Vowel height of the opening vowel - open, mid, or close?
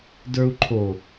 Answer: mid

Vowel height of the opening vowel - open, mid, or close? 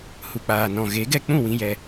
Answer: close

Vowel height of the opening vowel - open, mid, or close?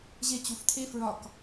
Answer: mid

